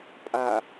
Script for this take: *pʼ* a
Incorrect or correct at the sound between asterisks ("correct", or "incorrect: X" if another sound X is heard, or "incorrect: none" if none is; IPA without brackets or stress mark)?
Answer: correct